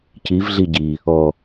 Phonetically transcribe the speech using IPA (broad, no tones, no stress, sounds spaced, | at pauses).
c i v ɮ i ɟ i | ɔ